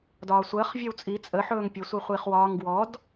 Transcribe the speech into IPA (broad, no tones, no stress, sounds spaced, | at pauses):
d ɒː sʷ əː χ vʲ ɔ w t͡sʼ i t͡sʼ ə ħ ɵː ŋ pʲ ə sʷ i χʷ i χ w ɒː ŋ ɡ w ɔ d